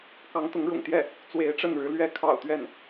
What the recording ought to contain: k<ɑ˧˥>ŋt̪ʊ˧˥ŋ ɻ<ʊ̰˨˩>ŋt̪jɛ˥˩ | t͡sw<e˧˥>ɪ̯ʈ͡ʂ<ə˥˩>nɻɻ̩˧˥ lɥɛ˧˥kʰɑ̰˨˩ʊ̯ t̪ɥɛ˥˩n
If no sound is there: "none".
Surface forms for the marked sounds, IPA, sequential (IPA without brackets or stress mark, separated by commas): ɑ˧˥, ʊ̰˨˩, e˧˥, ə˥˩